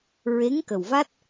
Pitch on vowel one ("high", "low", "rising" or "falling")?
rising